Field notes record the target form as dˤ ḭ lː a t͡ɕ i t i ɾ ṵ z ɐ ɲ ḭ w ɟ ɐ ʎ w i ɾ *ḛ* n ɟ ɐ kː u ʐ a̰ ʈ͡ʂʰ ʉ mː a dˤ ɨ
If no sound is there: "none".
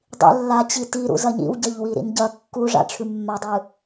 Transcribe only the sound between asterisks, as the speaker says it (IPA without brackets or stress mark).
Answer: ḭ